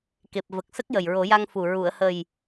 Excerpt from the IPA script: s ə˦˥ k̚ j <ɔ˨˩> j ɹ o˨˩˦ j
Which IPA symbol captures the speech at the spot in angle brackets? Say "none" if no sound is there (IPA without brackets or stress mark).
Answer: ə˨˩